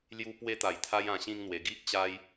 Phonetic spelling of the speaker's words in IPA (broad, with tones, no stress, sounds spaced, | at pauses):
l j u˧ p w e˧ t̪ a˨˩ j t̪ʰ a˧ j ã˧ ɕ ĩ˦ ŋ n̪ w e˧ ɡ i˦ ʔ t͡ɕ a˦ j